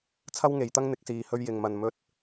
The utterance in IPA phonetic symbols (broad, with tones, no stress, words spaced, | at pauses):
t͡sʰɐ˥wŋe˨˧jt̪ɐ˥ŋ n̪ɪ˨˥k̚siː˧hɵ˥ɥ jɪ˧ŋmɐ˧n mɵ˥t̚